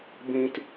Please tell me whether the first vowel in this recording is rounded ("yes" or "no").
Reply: no